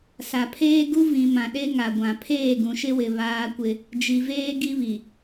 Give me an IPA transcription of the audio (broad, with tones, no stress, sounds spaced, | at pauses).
s a˨ pʰ eː˦ ɡ u˦ v ĩ˨ m ã˨ ɗ e˦ ŋ a˨ ɡʷ ã˨ pʰ eː˦˨ ɡ ũ˨ ʃ ɪ˦ w ɪ˨ β aː˦ kʷ ɪ˦ | d͡ʒ i˨ v eː˦ ɡ i˦ β i˨